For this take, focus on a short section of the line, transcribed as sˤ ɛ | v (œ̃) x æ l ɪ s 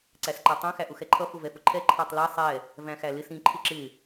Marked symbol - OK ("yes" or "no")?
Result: no